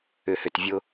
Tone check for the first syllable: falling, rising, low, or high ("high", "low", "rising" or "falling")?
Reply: low